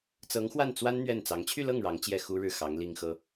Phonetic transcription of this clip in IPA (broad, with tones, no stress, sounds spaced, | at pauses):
t͡s ɤ˧˥ ŋ x w a˥˩ n t͡s w a˥ n n̪ ɥ ɛ˥˩ n t͡s ɑ˧˥ ŋ t͡ɕʰ y˥˧ l ɤ˥˩ ŋ ɻ ɑ˧˥ ŋ t͡ɕ j ɛ˥˩ x u˥ ɻ ɻ̩˥˩ x ɑ˧˥ ŋ l i˥ ŋ x ɤ˥